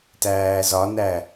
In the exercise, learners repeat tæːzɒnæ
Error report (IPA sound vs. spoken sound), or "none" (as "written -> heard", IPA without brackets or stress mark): none